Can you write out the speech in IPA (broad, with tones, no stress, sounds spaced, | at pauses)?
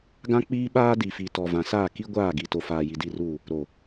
ɡ ã˦ k͡p iː˦ ɓ aː˦ d i˨ f i˨ t ɔ˨ v ã˨ s aː˦˨ k i˦ ɡʷ aː˦˨ ɡ i˨ t o˨ f aː˨ j i˨ d i˦˨ r uː˦˨ | ɾ o˨